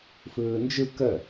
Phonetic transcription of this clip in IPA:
f ɯː n d͡ʒ ɯ k ə

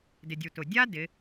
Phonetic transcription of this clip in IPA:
d ɪ˩ dʲ u˩ t ʊ˩ dʲ a˥ d ɪ˩˧

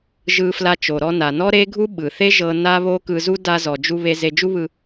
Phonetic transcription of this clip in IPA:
ʒ ɯ˧ f l a˧ t͡ʃ o˩ ɾ ɔ˧ n a˩ n ɔ˥ ɾ e˥ ɡʱ u˥ ɓ ɯ˩ θ e˥ ʒ ɤ˧ n a˥ β o˥ k ɯ˧ z u˥ d a˧ z ɔ˩ d͡ʒ u˧ β e˧ z e˧ d͡ʒ u˥ β ɯ˧

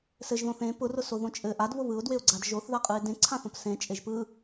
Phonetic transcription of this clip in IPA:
s ɘ ʒ ð õ θ ẽ p ʊ r ʊ s o ð õ t͡ʃʼ ɘ ʔ a d β ʊ β ɯ ʊ̯ d w e ʊ̯ ɡ͡ǀ a d ʒ o θ ð a qʼ ɯ ɪ̯ d ẽ ǀʰ ã θ õ p s ẽ t͡ʃʼ e ʒ p ɯ

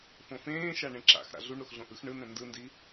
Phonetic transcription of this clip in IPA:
f õ f ẽː ʃ a ɳ ẽ ǁ a̰ x ɾ a̰ ɮ u ɳ ɾ o x ɮ õ ʔ ɯ x ɳ ɯ n ɛ̃ n d ɯ n d i

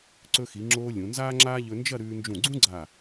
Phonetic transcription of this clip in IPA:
ǀ ɵ˧ x i˩˧ ŋ͡ǁ oː˧ lʲ ũ˩˧ n z aː˥ ŋ͡ǁ aː˥ ʎ ɵ˧ n d͡ʒ ɐ˥˧ ɾ ʉː˧ n d͡ʒ ũ˧˩ ɡ͡ǀ ũ˥ ɡ͡ǀ a˧˩

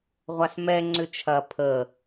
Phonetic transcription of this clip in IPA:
ʁʷ a s m ɛ ŋ͡ǀ ʏ t͡ʃʰ ɐ pʰ ə

